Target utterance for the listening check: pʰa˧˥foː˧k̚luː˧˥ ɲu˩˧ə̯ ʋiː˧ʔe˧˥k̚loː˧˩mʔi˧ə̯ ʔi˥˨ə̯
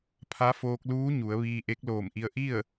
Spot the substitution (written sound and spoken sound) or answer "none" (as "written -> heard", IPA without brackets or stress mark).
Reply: none